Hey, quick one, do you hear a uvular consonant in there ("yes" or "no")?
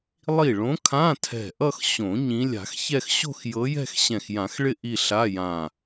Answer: no